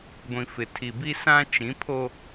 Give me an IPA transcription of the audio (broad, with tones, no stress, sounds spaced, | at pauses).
ɡʷ ĩ˨ f ɪ˨ tʰ i˨ b i˦ s ã˦ t͡ʃ ĩ˨˦ pʰ o˦